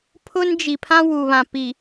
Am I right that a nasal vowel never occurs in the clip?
no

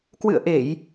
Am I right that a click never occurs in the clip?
yes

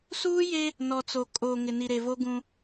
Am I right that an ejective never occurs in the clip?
no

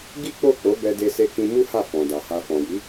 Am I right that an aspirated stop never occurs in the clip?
yes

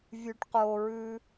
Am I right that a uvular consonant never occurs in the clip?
no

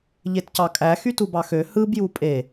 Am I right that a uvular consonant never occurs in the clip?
yes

